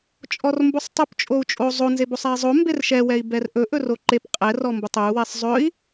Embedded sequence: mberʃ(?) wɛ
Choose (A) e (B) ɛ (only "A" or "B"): B